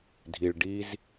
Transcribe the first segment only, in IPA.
dʱ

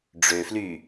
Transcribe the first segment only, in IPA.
ɖ͡ʐ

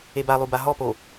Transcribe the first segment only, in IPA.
e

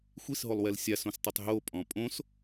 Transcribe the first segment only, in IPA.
xʷ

